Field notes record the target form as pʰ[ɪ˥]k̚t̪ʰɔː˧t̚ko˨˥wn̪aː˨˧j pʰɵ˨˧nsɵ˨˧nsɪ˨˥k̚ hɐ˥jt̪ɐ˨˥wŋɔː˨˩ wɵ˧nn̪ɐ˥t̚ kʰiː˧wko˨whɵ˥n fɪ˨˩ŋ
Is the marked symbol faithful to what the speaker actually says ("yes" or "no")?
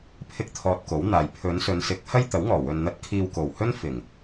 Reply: yes